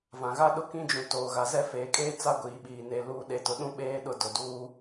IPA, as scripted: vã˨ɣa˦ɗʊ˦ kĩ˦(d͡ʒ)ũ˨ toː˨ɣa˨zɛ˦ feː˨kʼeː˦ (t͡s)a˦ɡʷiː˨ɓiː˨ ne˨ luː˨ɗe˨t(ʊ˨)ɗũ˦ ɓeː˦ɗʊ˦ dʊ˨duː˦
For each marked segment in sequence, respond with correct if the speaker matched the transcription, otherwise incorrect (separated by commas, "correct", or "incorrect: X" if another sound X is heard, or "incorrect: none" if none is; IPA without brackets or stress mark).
correct, correct, correct